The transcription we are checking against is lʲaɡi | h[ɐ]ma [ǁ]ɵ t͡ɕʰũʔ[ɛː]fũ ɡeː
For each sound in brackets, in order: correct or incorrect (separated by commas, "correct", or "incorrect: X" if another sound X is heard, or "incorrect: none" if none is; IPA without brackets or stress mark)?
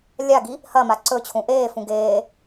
correct, incorrect: ǀ, incorrect: eː